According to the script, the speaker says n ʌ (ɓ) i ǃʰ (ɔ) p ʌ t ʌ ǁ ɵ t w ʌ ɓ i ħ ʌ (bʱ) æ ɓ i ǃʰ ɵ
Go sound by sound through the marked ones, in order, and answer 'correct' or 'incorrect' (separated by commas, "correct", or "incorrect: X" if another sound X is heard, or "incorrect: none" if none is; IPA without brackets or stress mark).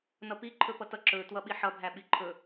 incorrect: p, incorrect: ɵ, correct